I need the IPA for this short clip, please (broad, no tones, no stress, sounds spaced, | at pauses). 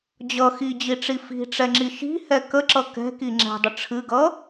d͡ʑ ʌ x i d͡ʑ i ʈ͡ʂ i f i̤ ʈ͡ʂ ɛ ŋ͡ǁ i ʃ i̤ h ɛ k ə ǁ ʌ k ɛ̤ k i ŋ͡ǁ ɛ̤ dˤ ə ʈ͡ʂʰ ɨ ɡ ʌ